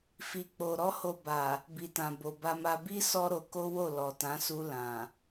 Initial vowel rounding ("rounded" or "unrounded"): unrounded